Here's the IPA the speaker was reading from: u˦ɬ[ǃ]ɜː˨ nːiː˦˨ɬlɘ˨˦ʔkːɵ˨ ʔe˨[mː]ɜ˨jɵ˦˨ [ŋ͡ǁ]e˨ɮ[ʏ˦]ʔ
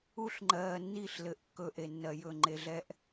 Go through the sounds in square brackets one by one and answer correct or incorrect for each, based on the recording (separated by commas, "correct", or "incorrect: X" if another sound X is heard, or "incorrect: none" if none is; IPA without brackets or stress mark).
incorrect: ŋ͡ǃ, incorrect: nː, incorrect: ŋ͡ǃ, incorrect: ɛ˦